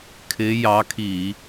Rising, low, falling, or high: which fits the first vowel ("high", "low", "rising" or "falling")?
rising